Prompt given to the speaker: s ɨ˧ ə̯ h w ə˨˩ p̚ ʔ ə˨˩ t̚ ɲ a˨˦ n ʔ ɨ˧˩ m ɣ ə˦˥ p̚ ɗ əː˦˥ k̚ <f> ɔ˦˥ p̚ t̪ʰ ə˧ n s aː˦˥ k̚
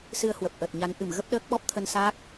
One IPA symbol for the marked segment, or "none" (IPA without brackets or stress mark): ɓ